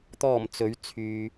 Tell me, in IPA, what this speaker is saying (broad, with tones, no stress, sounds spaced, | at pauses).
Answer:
t̪ ɔː˨˩ m t͡s ɵ˨˥ ɥ t͡sʰ yː˨